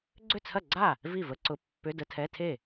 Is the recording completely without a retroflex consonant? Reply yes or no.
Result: yes